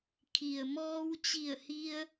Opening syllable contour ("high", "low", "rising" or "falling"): low